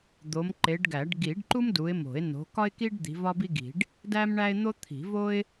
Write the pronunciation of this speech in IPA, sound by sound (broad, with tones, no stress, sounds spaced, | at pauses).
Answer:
d̪ o˨˦ m ǃ e˨˦ ɖ ɡ æ˨˩˦ ɖ ɡ i˨˩˦ ɖ ǃ u˥ m d u˨˦ ɪ̯ m o̤˨˩˦ ɪ̯ n o̤˨˦ k ɒ˥ ɪ̯ k i˥ ɖ d̪ i̤˨˦ v ɒ˥ b i˥ ɡ i̤˨˩˦ ɖ | d æ˥ m ɳ æ˥ ɪ̯ n̪ o˥ t̪ʰ i̤˨˩˦ v o˥ ɪ̯